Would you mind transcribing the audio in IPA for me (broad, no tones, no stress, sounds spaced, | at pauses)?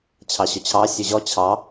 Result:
t͡ɕʰ ɑ ɕ ɵ t͡ɕʰ ɑ sʲ ʉ ʑ ɔ t͡ɕʰ ɑ